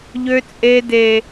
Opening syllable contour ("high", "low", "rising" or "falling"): high